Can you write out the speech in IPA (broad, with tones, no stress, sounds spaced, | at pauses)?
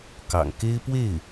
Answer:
k ɑ̰˨˩ ŋ k e˥ ɪ̯ p w e˥˩ ɪ̯